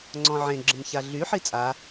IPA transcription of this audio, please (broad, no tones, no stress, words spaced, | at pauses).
ŋ͡ǀɔ̃ʕẽ ɡ͡ǁə̃mçaɮy ħit͡sʼa